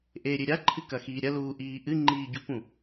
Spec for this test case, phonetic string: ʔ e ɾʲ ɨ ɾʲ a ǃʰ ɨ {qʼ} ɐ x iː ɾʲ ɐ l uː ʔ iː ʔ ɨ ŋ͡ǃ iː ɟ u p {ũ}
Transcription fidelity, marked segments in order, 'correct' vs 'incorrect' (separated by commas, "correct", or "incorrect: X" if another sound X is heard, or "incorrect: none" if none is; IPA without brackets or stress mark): incorrect: k, correct